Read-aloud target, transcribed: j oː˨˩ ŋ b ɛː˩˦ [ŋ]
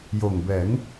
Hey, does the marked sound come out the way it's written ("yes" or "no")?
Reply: yes